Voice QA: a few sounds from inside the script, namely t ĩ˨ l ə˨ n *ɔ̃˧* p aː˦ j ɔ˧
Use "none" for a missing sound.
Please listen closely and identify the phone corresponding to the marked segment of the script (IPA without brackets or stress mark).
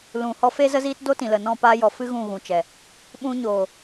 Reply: ɔ̃˦˨